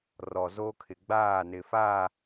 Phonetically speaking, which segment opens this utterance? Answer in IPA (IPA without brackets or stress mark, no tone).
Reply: r